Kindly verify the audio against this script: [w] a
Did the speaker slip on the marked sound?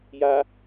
yes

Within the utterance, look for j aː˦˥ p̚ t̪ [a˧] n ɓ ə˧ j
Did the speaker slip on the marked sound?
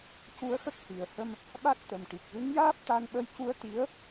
no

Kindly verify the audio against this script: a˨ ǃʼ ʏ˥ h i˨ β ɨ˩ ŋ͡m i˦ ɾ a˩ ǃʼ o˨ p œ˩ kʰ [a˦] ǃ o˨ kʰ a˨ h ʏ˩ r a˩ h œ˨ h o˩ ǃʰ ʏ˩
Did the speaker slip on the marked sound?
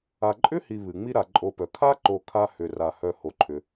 no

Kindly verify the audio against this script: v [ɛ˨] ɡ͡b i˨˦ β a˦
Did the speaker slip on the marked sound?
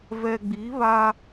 no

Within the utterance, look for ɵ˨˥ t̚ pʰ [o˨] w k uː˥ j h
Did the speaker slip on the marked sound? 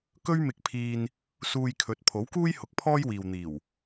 yes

